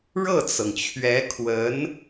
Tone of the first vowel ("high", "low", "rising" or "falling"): falling